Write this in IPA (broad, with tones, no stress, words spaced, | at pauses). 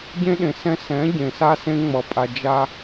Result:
ɟẽ˦ɗẽ˨sɛ̃˦ sɛ̃˨˦ ɟẽ˨sa˦sẽ˦ ŋ͡mʌ˨pʼa˨d͡ʒa˦